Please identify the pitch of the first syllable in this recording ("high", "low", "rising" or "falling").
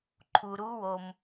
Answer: low